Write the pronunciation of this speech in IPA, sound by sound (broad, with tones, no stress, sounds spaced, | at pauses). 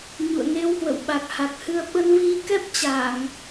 ɲ ṵ˧˨ ə̯ ŋ e˧ w h w ə̰˧˨ w ɓ a˨˩ k̚ h a˨˩ k̚ h ɨ˧ ə̯ ɓ ə˧ n v i˧ k ɛ˦˥ p̚ t͡ɕ a˧˩˨ ŋ